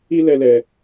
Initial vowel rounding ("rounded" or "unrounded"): unrounded